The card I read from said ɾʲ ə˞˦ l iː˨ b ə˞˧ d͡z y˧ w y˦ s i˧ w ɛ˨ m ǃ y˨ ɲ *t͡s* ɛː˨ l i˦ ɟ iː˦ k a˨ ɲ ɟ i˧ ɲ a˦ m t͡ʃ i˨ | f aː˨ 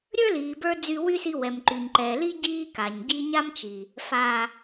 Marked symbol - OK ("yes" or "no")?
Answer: no